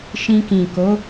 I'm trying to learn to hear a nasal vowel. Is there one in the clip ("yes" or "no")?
yes